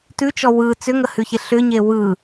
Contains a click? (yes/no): no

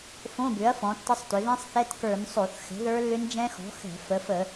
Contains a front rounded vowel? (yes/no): yes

